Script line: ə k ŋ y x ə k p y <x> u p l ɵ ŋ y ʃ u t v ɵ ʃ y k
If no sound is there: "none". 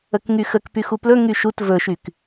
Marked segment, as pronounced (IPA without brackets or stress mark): x